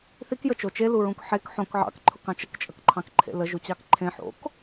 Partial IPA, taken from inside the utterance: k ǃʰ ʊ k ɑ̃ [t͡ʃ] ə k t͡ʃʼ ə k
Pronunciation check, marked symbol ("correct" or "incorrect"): correct